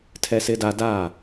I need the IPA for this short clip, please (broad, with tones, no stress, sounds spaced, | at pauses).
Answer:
tʰ ɛ˦ s ɪ˦ d a˦ d a˦˨